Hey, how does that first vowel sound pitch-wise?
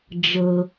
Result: low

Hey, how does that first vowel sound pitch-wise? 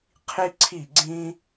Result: high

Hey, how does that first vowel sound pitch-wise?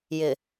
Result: low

